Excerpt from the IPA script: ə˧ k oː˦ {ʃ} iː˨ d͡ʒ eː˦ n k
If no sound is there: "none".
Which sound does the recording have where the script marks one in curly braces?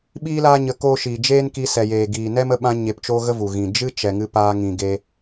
ʃ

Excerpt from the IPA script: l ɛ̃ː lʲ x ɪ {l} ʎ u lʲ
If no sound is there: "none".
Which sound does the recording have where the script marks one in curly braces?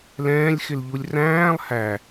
l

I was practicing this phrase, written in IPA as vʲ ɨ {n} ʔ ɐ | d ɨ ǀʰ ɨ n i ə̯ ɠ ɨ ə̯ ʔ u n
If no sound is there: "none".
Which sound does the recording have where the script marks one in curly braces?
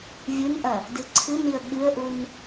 n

